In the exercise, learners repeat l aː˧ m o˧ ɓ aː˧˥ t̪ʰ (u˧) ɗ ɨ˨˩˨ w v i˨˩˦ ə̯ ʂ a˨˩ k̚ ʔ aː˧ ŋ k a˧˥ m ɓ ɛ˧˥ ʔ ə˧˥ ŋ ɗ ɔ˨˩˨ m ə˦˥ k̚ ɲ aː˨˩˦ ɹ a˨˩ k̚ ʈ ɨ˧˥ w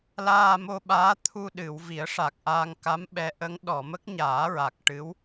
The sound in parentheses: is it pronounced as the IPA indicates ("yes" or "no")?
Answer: yes